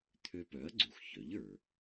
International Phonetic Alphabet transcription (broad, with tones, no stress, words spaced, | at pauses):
t̪ʰø˧pœ˩˥ɐ̯ɡ͡ǀu˩x çœ˩˥ʎə˞˩